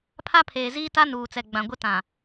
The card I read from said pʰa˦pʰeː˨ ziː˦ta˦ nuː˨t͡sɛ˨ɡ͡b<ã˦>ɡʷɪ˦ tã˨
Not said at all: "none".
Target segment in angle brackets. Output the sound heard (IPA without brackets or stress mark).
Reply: ã˨